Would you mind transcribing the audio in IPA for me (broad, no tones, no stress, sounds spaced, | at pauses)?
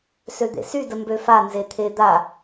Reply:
s ø d̪ ḛ s y d ə m b ø f a n z e t̪ʰ e d̪ a